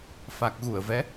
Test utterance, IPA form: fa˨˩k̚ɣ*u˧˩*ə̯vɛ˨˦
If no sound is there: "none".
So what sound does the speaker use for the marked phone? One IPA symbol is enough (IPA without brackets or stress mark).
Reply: u˧˩